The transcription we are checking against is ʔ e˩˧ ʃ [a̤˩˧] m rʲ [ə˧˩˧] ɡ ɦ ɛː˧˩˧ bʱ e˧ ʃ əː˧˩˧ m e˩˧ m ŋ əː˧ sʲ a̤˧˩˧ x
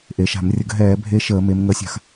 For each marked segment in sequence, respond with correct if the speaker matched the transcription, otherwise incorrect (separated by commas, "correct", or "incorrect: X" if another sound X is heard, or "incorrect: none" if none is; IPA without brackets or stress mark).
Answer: incorrect: a̤˧˩˧, correct